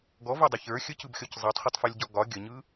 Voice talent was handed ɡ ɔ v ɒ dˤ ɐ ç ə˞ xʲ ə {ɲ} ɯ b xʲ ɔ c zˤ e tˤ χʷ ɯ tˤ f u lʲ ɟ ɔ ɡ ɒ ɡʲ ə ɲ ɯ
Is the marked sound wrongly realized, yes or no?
yes